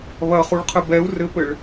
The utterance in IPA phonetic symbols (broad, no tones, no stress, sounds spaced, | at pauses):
β ɐ χ u ɭ qʰ ɘ b ɛ u̯ r ɘ p ɘ ɭ